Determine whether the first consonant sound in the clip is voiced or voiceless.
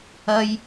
voiced